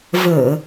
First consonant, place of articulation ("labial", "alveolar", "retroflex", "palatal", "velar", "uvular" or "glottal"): labial